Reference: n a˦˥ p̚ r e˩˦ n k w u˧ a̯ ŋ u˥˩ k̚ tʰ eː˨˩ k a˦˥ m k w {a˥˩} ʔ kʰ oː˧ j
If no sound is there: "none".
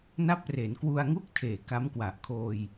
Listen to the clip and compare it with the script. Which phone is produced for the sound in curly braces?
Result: a˨˩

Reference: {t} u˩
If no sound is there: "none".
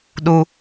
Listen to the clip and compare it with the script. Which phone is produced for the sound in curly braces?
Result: ɗ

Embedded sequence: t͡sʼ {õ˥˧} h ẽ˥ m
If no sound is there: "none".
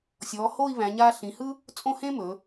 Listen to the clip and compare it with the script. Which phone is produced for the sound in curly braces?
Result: õ˥˧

